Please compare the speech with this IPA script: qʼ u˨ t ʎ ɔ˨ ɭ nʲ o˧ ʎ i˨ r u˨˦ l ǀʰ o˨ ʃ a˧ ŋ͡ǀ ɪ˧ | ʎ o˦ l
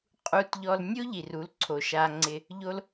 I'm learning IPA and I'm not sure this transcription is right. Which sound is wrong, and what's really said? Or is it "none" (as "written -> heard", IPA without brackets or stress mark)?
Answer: ɭ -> l